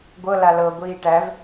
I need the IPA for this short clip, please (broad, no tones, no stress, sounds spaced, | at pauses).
ɡʷ ɤ l a l ɤ ɡʷ iː ʈ æ v